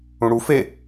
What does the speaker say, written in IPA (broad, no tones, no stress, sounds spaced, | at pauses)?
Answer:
ũ ɽ u f e